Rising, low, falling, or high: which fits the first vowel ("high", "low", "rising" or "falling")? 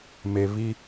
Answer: low